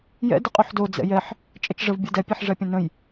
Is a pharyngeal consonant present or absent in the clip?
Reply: present